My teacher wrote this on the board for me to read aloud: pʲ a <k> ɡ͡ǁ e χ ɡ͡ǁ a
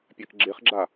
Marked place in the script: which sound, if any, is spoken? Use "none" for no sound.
k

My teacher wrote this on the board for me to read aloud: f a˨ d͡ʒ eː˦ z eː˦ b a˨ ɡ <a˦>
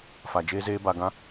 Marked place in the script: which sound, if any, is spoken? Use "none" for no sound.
ã˦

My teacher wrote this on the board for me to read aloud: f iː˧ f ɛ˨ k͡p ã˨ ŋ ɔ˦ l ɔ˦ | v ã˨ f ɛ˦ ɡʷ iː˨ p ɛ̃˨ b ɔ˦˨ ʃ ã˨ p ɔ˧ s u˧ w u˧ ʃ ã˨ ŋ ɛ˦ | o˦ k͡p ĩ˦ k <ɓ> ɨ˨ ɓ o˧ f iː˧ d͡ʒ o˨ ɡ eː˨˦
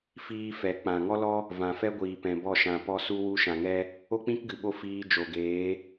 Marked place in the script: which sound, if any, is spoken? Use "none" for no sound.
ɡ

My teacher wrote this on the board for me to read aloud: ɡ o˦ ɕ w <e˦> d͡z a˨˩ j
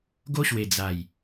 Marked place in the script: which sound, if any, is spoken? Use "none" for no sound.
e˨˩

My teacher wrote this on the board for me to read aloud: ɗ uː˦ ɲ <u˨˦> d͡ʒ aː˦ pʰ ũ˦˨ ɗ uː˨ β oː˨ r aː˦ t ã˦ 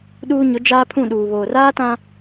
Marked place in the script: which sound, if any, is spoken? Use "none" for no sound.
ʊ˨˦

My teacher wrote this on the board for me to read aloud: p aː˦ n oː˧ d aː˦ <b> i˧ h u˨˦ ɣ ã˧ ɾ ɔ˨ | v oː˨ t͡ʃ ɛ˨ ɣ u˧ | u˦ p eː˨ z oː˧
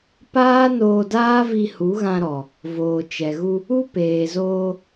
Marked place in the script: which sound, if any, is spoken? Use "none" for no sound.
v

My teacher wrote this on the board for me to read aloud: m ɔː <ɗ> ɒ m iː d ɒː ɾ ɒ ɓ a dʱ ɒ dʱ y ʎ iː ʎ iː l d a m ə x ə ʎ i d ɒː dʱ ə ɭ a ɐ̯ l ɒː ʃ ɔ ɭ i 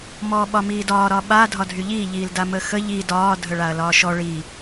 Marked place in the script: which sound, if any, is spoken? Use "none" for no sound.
ɓ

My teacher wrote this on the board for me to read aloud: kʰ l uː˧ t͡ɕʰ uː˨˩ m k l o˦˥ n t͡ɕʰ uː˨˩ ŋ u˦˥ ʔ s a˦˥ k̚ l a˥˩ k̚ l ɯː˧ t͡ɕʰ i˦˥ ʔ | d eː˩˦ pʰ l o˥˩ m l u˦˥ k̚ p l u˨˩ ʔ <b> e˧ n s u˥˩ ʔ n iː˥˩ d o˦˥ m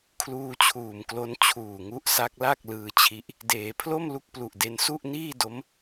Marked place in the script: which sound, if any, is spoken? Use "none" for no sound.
d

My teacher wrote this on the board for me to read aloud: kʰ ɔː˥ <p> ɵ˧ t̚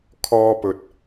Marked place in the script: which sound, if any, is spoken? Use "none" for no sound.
p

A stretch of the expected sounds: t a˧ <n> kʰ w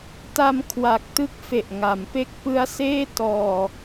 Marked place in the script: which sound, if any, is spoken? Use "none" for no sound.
m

